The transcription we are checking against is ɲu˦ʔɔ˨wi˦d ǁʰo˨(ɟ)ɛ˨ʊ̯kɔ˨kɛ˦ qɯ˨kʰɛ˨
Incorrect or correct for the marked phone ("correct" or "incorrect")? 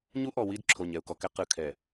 incorrect